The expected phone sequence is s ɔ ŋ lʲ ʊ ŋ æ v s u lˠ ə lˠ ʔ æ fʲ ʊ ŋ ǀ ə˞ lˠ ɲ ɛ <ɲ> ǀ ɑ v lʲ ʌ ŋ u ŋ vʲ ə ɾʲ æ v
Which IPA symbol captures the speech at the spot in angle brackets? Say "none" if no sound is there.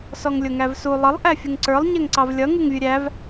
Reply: ŋ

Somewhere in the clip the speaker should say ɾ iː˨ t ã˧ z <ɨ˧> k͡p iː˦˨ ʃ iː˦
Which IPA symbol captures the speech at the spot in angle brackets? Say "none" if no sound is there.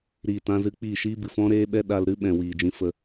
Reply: ɨ˧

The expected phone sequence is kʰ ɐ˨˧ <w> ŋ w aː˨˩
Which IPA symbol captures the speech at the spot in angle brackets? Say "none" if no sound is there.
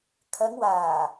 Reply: none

